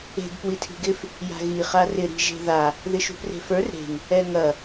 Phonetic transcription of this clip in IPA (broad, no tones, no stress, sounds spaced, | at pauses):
e̤ ɡ p w i tʰ i̤ ɡ ɪ f | j a̤ ɣ i χ a r ɪ ɾ i̤ ʒ e̤ ð a | ð ɪ ʃ ṳ p r e̤ f ə˞ r ɾ e̤ ŋ | ɛ ŋ ɐ